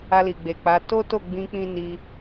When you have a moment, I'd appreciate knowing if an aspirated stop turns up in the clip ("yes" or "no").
no